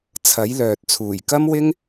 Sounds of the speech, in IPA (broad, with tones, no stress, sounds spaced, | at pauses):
t͡sʰ ɐ˨˥ j l œː˨ t̚ t͡sʰ uː˨˩ j k ɐ˥ m w ɪ˥ ŋ